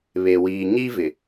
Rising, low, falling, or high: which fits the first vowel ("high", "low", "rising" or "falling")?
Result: low